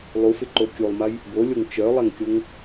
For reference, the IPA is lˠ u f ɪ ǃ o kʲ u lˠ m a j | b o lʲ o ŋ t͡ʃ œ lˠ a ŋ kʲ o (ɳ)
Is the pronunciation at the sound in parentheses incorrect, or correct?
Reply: incorrect